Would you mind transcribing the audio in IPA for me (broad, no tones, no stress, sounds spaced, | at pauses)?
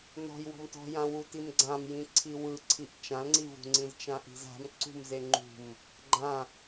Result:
n ɔ̤ j w ɔ̤ m t ɔ̤ j ã w u t i m ɡ͡ǀ ã m j ĩ ǀʰ i w ɯ ǀʰ i ʔ t͡ʃ ã l ŋ͡ǀ i v ṳ ŋ͡ǀ ĩ z t͡ʃ ã ʔ i̤ z a̤ m ǀ ṳ m z e ŋ͡ǃ ṳ m | ɡ͡ǃ ã